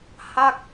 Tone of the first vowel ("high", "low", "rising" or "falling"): falling